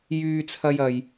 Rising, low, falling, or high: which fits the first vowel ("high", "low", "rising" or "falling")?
high